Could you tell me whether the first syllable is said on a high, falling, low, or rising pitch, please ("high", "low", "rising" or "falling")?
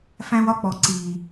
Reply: high